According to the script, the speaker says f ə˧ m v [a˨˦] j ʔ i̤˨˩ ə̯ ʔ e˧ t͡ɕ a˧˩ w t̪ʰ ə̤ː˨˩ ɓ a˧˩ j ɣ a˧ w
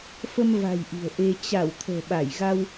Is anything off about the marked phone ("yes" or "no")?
yes